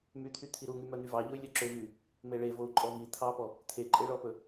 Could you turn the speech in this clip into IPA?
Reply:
myt̪ʰy t̪ʰiɾuŋy mœn̪yvɑʎoy̯ lʲœǁøvy | meɭe vou̯ǃʼɔvi t̪ʰɑpɔ | t̪ʰeǃʼeɭɔpɵ

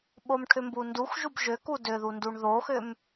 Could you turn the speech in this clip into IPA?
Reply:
ɓomʈʰʏmbundux ʒubʒʏku dʏðunduɳ ðoxʏm

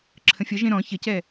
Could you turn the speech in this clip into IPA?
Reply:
ǁʰə̃fʲʌʒẽ ɾɔ̃ çəcɛ

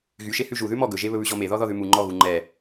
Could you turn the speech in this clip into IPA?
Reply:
ɣyʃe hʉʒu ðʉmɔ ɡɵʒe βɵβʉʑɔme ðɔðɔðʉmu ŋ͡ǃɔɣu ŋ͡ǃɛ

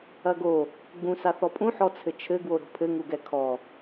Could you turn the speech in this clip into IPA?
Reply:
ɐɡo | ɡ͡bũ saθɔpʼũ ħɔt͡sʰɘt͡ʃʰɘ ɡwoɾo̤pʰɘ ŋuɡɛkʰɔ

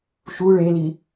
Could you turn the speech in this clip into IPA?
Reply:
ʃu ɭeli

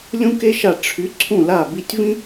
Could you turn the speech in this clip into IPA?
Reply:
lʲũ˥ke˥ʃa˦˨ ʈ͡ʂʰy˨˥ǀʰũ˦˨ la˦˨bi˦˨tʲvĩ˥

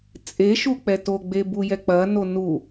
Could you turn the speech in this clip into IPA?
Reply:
t͡sʼeʃuk͡pɛ toɡ͡bebujɛ k͡pɐno nu

